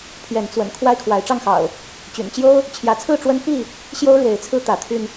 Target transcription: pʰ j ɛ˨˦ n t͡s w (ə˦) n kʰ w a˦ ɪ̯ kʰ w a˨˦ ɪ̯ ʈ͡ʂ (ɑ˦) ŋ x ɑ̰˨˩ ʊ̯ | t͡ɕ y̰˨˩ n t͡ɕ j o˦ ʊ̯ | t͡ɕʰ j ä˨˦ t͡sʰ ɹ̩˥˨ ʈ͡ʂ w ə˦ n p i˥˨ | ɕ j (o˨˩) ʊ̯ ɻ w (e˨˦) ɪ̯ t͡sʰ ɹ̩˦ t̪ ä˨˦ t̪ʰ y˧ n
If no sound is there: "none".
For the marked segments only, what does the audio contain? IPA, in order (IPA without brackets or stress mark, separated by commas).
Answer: ə̰˨˩, ɑ˥˨, o˦, e˨˦